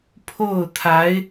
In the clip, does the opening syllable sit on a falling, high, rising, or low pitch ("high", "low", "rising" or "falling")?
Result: falling